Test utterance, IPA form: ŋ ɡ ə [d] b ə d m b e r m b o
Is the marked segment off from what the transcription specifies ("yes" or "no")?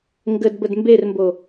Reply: no